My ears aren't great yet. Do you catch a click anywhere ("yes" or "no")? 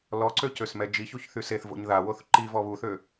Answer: yes